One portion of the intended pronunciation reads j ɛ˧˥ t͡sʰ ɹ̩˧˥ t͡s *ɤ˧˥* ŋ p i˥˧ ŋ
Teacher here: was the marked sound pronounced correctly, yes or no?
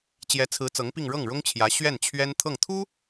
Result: yes